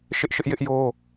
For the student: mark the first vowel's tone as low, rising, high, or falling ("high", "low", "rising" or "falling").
high